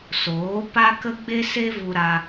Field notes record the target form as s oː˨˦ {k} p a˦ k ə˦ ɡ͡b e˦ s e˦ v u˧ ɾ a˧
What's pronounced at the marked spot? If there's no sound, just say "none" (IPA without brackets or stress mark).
none